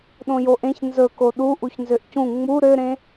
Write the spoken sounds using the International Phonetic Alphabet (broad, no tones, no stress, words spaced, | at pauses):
ɗõjoʔẽç nzɵko ɗu ʔuçnzøʔcũ ŋ͡mu ɾøɾẽ